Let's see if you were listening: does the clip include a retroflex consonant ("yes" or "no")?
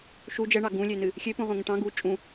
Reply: yes